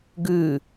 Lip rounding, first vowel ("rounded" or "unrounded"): rounded